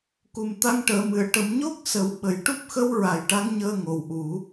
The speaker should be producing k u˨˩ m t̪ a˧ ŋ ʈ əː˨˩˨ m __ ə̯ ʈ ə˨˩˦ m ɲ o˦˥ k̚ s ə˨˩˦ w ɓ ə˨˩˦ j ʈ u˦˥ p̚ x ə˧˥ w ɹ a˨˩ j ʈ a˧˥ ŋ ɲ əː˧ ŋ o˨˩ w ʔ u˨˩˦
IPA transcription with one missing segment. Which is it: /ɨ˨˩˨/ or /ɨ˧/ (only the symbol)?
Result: ɨ˨˩˨